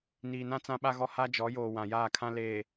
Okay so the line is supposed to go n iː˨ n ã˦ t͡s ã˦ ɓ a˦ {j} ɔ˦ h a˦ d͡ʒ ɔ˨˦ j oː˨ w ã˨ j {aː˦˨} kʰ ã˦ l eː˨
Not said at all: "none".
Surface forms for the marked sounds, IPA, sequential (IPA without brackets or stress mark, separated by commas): ɣ, aː˦˨